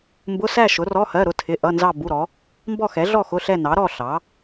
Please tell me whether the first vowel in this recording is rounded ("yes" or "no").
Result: yes